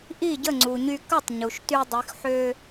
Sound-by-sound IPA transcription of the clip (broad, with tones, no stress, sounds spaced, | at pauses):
ʔ i˥˩ ɟ ə˥˩ ŋ͡ǀ u˩ ɲ y˧ k ə˥˩ tˤ ɲ u˩ ʃ t y˧ dˤ y˩˧ x ħ ø˧